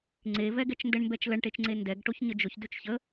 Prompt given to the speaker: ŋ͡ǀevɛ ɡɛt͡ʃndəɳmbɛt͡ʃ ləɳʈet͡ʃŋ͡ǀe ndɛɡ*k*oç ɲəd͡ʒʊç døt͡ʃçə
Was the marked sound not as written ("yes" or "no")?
yes